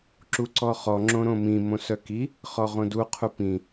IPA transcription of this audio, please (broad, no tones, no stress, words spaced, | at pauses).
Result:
ǁuǀɔχɔ ŋ͡ǁõɾõmĩ mõsœki | χɔʁõdu qʰupĩ